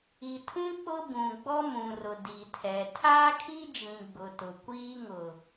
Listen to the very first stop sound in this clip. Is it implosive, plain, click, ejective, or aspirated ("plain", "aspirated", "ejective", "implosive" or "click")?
aspirated